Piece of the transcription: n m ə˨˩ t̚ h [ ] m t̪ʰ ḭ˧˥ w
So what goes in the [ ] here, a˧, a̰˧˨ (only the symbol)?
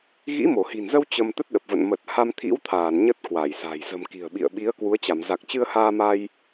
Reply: a˧